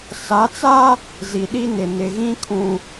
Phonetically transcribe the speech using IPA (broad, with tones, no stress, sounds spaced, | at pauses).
s a˨˦ t͡s a˦ | z i˨ ɗ i˦ n ɪ˨ n ɪ˨ ɣ ĩ˦ kʰ ũ˨